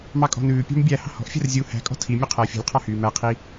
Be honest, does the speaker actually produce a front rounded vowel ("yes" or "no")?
yes